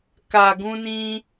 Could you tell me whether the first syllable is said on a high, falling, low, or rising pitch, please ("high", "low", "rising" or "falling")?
low